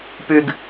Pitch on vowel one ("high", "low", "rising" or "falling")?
low